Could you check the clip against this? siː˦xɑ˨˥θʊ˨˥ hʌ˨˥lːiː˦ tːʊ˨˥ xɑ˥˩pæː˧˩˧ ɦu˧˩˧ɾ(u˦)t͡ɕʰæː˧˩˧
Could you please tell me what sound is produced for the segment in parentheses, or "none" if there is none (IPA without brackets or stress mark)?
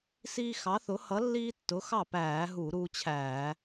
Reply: uː˦